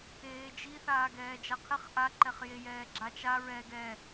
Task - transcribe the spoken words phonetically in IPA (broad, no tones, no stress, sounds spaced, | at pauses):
eː d͡ʒ i θ aː ɡ ɛː d͡ʒ a qʰ ɪ χ ʔ a ǃ ɛ χ j e j ɛː ɡ͡ǁ a t͡ʃ a ɹ ɛ ɡ ɛ